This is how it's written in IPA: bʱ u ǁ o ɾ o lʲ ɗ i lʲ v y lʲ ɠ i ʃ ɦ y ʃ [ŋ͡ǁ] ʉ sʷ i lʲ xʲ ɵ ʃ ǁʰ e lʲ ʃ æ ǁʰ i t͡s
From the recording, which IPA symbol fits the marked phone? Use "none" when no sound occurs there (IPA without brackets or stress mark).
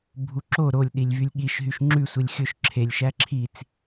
ŋ͡ǁ